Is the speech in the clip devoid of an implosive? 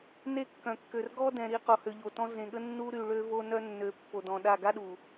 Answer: no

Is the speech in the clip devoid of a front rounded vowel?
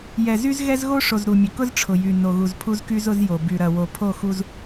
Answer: no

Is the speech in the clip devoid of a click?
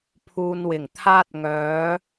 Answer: yes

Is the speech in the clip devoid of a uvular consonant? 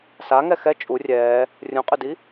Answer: no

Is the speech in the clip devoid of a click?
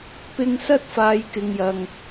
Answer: yes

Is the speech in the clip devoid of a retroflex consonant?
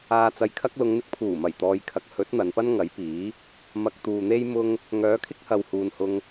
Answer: yes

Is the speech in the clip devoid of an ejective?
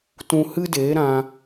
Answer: yes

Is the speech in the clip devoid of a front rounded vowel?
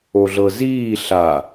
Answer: yes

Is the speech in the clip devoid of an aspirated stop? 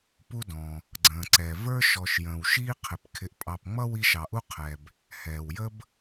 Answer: no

